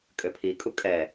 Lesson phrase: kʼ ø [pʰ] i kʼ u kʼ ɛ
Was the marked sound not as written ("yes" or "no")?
no